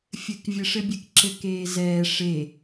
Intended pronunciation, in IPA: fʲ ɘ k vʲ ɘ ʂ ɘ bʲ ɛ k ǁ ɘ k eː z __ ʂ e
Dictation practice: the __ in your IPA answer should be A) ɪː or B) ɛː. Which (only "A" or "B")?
B